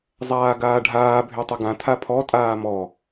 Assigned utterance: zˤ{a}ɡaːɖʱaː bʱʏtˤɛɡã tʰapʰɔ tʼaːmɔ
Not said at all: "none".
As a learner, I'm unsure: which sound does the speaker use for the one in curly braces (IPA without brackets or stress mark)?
aː